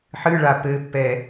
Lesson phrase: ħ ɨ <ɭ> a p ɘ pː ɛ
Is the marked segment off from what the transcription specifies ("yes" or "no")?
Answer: no